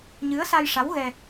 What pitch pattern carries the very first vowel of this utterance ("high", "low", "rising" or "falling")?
rising